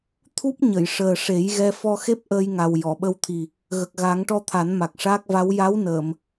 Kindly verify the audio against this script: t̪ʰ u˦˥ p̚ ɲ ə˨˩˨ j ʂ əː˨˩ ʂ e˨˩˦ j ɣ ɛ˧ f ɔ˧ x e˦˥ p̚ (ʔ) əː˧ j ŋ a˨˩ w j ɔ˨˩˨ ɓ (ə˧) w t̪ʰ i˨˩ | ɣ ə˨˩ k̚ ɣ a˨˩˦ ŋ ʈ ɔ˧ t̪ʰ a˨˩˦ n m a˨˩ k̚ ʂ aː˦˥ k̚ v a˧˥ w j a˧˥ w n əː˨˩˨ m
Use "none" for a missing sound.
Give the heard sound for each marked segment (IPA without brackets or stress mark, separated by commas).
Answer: ʔ, ə˧